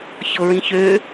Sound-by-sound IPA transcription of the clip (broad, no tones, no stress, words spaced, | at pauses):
çɤɹĩçø